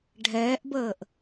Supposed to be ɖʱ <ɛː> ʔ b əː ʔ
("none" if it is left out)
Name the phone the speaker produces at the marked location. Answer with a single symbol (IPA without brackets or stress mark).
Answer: ɛː